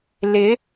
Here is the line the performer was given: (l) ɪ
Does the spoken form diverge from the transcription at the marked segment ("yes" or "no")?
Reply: no